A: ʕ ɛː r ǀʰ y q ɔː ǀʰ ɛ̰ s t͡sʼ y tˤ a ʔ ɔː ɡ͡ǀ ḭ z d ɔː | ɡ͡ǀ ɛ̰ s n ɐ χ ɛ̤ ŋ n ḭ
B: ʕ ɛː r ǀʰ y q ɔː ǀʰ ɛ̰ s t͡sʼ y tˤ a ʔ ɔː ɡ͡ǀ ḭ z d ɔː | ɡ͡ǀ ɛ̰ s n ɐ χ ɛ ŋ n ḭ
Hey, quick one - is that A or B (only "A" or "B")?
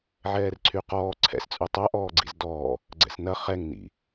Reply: B